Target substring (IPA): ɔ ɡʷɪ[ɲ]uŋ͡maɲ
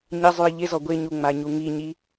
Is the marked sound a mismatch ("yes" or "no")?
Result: no